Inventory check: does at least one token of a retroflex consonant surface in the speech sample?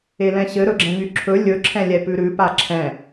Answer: no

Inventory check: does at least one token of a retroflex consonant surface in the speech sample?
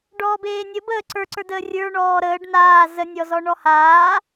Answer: yes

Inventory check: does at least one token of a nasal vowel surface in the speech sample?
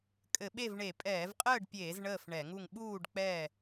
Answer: no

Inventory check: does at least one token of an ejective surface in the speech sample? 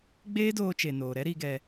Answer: no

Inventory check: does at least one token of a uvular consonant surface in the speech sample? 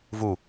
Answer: no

